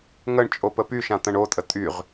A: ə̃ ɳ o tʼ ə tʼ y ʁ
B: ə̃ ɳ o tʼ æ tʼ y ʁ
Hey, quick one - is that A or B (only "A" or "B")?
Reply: A